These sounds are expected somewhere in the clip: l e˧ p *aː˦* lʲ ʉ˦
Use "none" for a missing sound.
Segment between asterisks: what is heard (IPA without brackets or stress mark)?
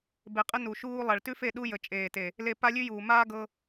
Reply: a˦